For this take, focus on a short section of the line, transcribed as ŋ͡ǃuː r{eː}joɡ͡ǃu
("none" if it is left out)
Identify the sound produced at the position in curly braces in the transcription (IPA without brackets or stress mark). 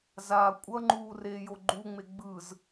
eː